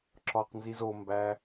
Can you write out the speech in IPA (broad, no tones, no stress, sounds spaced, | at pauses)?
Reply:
ǁ ɒ q n z i z o m b æ